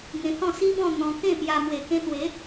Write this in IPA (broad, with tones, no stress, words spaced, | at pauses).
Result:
ŋẽ˧hɔ̃˥˧si˦bɔ̃˥˧ n̪ɔ̃˧kẽ˥˧pja˧ mwe˨˩kẽ˧t̪we˨˦